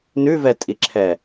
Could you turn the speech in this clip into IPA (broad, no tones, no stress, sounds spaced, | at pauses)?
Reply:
n ʉ v ɛ tʼ i ǁʰ ɛ